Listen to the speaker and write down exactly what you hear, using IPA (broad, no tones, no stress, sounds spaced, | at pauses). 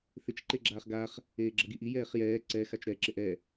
θ ɪ t͡ʃ ǃ e ɡ͡ǁ aː χ ɡ a χ | eː ɡ͡ǁ ʌ ɡ i ʔ i j ɛː χ j ɛː ǀ ɛ x a t͡ʃ ɾ ɛ ǁ ɪ ʔ ɛ